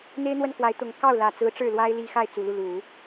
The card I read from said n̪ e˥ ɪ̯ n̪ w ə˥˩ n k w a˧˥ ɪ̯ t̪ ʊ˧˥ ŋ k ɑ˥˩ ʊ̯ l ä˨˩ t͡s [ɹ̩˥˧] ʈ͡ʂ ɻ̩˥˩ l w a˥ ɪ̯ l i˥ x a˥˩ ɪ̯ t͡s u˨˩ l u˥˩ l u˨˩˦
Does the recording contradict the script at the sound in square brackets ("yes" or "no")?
yes